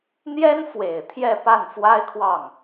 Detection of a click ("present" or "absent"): absent